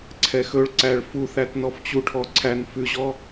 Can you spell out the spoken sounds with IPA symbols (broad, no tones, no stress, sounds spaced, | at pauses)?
ǀʰ ɛ x ɵ ɭ ǀ æ ɭ f u θ æ t n ɔ f t͡ɕ u ʈʰ ɔ ǀʰ æ n f ʉ ʑ ɔ